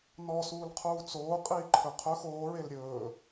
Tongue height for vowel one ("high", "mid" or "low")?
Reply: mid